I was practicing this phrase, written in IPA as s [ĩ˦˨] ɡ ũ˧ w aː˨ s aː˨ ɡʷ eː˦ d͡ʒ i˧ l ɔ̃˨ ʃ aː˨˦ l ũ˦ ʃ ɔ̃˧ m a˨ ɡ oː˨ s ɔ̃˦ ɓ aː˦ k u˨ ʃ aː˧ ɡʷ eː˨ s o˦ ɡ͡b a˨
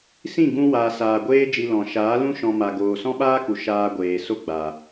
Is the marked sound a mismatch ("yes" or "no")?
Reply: no